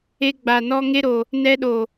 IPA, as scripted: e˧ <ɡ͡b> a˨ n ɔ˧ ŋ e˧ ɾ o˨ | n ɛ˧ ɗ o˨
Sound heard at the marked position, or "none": ɡ͡b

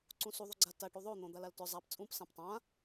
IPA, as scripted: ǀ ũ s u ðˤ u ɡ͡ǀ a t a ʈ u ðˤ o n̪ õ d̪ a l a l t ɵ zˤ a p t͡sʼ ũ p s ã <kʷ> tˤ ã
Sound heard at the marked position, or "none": p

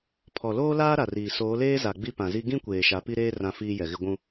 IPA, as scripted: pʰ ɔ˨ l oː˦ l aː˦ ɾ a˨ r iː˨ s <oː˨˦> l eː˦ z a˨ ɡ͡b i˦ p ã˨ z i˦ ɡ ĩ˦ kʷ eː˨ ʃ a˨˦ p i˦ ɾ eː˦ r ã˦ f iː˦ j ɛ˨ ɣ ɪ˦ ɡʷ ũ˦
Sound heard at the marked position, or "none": oː˨˦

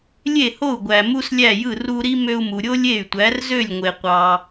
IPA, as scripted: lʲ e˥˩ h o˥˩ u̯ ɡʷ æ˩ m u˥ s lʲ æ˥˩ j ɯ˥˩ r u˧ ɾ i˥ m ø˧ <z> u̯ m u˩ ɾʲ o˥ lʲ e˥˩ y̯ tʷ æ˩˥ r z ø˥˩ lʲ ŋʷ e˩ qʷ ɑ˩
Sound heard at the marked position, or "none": none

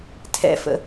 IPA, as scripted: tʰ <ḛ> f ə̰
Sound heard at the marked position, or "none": ɛ̰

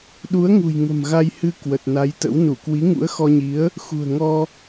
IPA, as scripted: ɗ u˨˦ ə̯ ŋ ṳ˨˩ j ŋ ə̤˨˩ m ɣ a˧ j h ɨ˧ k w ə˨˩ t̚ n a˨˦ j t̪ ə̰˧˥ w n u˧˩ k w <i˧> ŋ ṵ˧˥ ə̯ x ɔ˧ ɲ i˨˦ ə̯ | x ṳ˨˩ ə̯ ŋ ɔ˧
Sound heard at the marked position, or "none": i˨˦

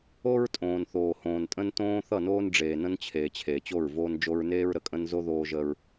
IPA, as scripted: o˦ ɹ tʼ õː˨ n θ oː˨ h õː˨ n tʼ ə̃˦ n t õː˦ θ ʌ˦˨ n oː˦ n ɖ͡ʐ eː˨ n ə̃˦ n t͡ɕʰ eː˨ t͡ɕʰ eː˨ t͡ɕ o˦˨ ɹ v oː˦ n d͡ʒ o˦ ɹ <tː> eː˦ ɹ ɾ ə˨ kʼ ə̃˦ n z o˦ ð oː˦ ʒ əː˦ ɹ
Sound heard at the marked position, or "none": n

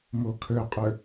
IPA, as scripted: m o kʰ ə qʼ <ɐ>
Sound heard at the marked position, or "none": ə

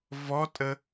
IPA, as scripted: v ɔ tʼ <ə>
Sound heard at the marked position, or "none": ə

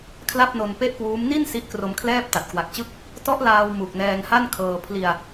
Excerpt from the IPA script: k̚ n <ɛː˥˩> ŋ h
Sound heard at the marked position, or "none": ɛː˧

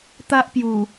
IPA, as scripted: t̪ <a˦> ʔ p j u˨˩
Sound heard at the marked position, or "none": a˦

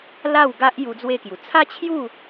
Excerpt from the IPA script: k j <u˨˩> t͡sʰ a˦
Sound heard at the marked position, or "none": u˨˩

